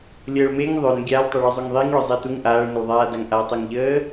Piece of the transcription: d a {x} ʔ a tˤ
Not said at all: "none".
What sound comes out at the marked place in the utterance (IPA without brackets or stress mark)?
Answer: ŋ